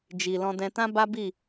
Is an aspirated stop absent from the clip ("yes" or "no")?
yes